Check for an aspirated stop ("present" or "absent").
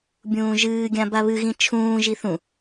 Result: present